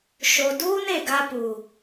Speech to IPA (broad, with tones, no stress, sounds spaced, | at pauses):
ʃ o˨ d uː˦ n e˨ ɡ a˦ p uː˨